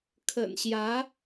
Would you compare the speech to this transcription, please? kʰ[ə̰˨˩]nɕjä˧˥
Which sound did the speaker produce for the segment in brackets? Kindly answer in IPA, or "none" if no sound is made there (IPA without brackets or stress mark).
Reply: ə̰˨˩